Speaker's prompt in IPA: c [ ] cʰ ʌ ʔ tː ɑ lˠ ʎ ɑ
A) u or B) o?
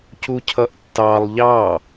A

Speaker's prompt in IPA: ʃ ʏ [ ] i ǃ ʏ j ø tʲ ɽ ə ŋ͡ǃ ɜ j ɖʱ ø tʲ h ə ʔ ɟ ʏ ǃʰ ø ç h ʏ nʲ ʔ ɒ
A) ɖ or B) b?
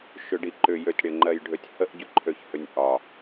A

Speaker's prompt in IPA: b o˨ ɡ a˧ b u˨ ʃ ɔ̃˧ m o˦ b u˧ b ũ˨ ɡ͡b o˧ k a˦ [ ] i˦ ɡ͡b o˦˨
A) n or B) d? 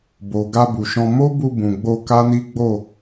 A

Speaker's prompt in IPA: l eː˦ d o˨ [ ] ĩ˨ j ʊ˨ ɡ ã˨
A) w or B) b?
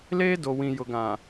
A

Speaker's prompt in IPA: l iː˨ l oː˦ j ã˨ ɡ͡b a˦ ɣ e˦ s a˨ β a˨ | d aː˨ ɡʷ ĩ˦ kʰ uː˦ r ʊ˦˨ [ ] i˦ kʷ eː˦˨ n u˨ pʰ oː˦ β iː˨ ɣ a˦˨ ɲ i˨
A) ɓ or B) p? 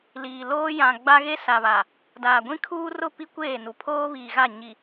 B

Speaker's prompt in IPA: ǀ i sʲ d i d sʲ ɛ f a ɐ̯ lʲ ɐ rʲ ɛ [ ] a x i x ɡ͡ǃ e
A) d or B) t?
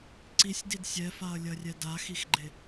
A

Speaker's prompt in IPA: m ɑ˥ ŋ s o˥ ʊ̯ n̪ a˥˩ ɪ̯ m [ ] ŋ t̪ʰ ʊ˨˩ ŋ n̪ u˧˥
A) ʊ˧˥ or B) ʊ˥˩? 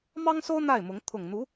A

